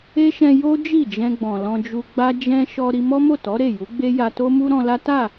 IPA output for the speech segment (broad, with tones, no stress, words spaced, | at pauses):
e˦ʃɛ̃˧ jo˦ d͡ʒi˦˨d͡ʒɛ̃˧ɡ͡bɔ̃˨ lɔ̃˧d͡ʒu˧ɡ͡ba˦ d͡ʒɛ̃˧ ʃɔ˧ ɾi˧mɔ˦mo˦˨tɔ˨˦ ɾe˦˨ju˨˦ɡ͡be˦ ja˧to˦mu˦ ɾɔ̃˧la˦ ta˦˨